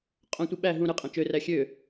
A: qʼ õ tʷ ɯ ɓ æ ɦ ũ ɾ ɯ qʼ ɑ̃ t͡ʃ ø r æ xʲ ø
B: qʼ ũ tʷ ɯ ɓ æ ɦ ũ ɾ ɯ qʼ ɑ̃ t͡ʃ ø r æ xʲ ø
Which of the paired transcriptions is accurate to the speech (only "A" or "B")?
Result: A